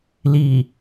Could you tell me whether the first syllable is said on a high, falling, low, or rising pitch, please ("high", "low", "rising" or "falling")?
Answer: low